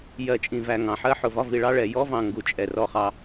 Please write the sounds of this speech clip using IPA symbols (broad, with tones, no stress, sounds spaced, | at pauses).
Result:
j ɜ˨ t͡ʃʼ ĩ˨ v æ˨ ŋ ɑ̃˨ ħ ɜ˦ ħ ʊ˨ v ɒ˦ v i˨ ɭ ɑ˦ ɭ ɛ˨ j ɔ˦ v ɑ̃˨ ŋ ɡ u˨ t͡ʃʼ ɛ˨ r ɔ˦˨ χ ɑ˦